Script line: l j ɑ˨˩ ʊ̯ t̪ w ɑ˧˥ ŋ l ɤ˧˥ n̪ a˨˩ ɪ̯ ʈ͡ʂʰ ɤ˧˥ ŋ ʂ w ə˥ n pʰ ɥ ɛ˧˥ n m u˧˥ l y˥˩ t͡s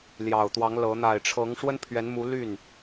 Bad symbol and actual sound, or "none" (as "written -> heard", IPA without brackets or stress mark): t͡s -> n